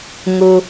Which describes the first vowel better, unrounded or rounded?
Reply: rounded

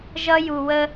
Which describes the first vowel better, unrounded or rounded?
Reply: unrounded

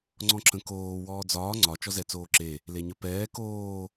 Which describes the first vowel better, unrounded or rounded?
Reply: rounded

